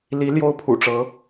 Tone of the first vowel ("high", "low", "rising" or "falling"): rising